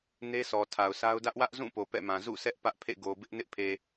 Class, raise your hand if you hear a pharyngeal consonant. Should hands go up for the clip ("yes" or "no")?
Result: no